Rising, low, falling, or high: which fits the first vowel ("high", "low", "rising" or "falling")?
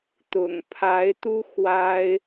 low